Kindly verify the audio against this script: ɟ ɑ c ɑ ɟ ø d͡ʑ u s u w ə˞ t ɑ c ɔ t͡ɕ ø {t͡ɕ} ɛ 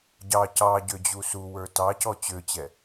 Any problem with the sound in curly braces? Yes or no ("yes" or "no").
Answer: no